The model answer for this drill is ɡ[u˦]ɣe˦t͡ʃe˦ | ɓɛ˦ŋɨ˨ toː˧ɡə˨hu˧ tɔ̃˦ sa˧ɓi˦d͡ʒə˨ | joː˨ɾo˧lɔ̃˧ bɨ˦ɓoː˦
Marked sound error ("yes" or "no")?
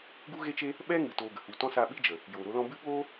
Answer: no